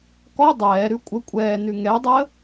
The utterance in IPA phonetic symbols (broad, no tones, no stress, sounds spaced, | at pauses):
k ɔ dˤ ɛː ɾ ʉ kʷʼ ə kʷʼ ɛː n ʉ ŋ ɛ dˤ əː